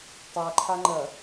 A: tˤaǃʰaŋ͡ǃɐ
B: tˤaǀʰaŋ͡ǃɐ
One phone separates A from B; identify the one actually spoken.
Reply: A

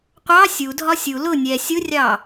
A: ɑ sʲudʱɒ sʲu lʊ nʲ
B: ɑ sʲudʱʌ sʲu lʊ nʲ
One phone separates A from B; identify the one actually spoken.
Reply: A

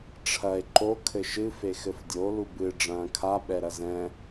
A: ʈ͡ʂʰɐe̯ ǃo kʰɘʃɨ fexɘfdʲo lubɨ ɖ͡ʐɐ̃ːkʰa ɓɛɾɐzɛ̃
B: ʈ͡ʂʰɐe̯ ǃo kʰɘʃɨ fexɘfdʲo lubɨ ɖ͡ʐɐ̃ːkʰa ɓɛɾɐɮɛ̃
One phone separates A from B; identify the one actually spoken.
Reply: A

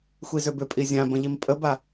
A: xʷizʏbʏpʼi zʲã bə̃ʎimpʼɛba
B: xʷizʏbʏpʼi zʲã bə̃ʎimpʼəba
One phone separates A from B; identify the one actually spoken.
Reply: B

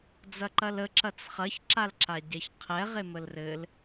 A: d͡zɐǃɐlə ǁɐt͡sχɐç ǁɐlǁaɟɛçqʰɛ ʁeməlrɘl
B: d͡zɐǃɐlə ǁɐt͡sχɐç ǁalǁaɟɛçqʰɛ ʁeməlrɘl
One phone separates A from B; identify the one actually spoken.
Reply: B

